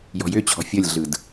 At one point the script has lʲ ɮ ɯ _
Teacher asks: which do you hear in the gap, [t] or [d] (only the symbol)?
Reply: d